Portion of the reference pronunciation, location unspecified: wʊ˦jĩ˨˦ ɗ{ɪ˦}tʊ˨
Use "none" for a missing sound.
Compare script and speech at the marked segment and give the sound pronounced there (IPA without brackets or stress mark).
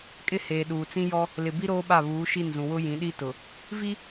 i˦